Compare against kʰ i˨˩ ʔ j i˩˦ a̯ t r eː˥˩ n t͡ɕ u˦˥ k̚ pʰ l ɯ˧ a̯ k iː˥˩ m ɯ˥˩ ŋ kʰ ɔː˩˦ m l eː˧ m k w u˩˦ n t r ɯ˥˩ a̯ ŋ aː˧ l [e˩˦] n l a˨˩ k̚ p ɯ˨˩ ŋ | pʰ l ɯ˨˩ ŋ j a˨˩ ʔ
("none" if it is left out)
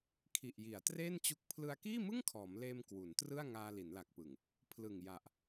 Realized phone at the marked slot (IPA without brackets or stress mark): i˩˦